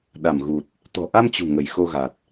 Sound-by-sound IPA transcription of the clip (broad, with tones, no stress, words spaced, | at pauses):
ɗa˧˩mɣu˨˩t̚ | t̪ɔ̤˨˩ʔa˧mt͡ɕṳ˨˩ ŋə˧˩jxo˧ɣa˨˩t̚